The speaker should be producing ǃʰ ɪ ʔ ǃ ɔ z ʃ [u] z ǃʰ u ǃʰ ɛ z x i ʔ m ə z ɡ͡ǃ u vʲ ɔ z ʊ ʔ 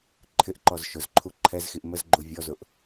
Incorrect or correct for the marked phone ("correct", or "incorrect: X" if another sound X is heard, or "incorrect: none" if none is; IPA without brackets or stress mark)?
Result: incorrect: ʊ